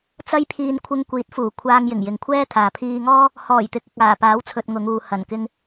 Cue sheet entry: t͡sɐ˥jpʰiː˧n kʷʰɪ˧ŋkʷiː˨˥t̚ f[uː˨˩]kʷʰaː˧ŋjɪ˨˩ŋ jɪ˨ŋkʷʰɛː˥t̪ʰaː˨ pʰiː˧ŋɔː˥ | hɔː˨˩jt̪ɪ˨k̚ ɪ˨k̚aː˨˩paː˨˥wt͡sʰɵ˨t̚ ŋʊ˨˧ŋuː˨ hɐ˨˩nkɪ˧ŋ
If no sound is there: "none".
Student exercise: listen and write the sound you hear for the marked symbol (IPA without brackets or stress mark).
uː˨˩